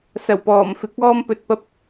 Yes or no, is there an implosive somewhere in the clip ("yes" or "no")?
no